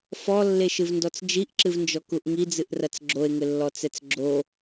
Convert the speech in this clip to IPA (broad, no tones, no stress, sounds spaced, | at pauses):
f ɔ lː e ʃ ɨ v n d ɔ t͡s d͡ʒ i ʔ ǁ ɨ v n d͡ʒ ɔ k u ʔ ŋ i d͡z ɨ ʔ r ɐ t͡s ɡ͡ǁ o e̯ ŋ ɘ lː ɔ t͡s ɛ t͡s ɡ͡ǁ o